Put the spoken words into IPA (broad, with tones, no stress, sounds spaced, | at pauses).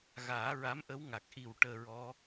ɣ aː˨˩˦ ɹ a˧˥ m ʔ ə˧˥ w ŋ a˨˩ k̚ ʔ i˨˩ w ʈ əː˧ ɹ ɔ˧˥